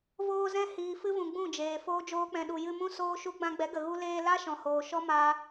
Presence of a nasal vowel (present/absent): present